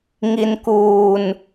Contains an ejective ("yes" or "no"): no